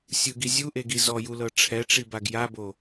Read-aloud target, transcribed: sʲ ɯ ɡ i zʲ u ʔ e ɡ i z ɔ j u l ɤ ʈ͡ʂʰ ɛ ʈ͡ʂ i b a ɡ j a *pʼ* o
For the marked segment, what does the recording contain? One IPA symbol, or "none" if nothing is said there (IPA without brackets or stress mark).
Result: b